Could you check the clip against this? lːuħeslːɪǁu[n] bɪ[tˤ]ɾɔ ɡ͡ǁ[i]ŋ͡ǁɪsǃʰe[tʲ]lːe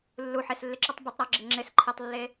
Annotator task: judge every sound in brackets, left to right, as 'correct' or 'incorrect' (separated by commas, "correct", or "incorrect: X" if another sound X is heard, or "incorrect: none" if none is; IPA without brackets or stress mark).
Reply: incorrect: tˤ, correct, incorrect: ɪ, incorrect: tˤ